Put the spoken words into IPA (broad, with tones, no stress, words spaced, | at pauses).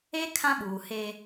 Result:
e˦ kʰã˦ɓuː˨he˦